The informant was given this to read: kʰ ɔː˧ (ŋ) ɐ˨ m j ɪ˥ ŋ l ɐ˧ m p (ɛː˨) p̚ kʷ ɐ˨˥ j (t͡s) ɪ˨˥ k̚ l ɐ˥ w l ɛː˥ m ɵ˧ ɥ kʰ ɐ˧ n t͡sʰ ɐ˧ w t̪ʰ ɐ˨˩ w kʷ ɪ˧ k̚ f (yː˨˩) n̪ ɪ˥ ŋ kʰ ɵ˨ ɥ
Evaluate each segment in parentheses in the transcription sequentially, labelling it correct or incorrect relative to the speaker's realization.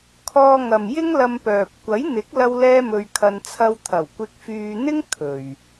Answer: correct, incorrect: œː˨, incorrect: n̪, incorrect: yː˧

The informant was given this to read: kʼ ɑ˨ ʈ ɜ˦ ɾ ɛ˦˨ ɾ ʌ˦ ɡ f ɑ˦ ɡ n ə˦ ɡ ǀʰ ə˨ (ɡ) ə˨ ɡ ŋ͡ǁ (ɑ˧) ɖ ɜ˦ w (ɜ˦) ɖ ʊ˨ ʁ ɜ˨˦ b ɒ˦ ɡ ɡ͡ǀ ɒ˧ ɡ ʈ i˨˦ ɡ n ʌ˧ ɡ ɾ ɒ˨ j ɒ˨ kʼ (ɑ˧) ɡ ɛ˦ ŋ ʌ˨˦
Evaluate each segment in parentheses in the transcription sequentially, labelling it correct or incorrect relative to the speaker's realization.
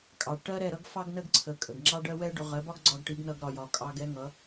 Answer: incorrect: kʼ, incorrect: ɑ˦, incorrect: ɛ˦, correct

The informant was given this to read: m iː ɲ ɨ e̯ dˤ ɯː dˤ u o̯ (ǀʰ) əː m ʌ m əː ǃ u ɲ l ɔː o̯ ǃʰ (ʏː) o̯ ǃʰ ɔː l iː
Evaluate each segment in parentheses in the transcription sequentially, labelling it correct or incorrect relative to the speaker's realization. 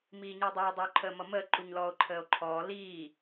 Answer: incorrect: ǃʰ, incorrect: əː

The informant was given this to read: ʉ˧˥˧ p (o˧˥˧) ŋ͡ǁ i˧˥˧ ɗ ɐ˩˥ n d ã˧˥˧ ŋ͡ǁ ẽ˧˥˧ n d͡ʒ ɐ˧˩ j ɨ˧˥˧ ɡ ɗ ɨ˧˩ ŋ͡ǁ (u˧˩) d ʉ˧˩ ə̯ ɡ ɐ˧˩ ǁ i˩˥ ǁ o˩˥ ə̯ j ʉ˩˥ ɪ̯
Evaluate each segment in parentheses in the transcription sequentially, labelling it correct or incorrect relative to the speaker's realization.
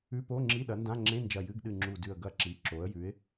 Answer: correct, correct

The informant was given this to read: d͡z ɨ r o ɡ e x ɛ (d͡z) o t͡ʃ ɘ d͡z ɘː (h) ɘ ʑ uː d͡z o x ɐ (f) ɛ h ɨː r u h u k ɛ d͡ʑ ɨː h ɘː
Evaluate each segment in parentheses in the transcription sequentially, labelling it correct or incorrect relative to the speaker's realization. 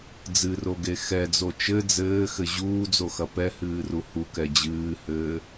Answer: correct, incorrect: x, incorrect: p

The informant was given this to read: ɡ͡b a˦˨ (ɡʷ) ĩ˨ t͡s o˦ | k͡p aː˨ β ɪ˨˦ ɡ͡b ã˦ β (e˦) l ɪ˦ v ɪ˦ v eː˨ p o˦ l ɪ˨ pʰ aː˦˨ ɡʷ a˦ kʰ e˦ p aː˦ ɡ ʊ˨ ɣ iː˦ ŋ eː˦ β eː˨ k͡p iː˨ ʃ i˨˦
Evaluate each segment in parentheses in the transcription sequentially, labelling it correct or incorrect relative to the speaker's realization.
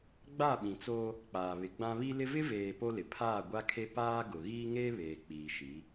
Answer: incorrect: ɓ, incorrect: i˦

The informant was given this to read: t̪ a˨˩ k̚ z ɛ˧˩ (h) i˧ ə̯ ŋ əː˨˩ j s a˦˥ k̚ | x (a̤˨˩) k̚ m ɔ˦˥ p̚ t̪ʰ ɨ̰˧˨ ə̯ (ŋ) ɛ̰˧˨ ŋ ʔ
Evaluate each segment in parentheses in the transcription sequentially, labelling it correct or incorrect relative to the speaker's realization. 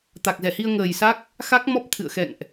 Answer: correct, incorrect: a˦˥, incorrect: x

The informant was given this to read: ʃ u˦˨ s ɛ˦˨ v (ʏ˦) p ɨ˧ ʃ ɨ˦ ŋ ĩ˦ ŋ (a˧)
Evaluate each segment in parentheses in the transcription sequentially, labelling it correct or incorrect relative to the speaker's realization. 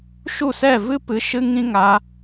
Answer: incorrect: ɨ˦, correct

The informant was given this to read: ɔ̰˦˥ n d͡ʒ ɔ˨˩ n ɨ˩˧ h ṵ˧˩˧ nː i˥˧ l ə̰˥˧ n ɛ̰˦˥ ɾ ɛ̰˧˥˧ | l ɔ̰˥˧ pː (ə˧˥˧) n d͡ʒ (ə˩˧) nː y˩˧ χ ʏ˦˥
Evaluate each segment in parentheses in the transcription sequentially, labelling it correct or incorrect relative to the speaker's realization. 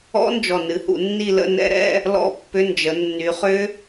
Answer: incorrect: ʏ˧˥˧, correct

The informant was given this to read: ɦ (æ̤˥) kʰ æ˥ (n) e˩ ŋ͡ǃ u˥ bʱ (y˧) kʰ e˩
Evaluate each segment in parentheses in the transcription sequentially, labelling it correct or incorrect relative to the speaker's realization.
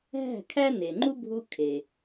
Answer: incorrect: æ̤˥˩, correct, incorrect: u˧

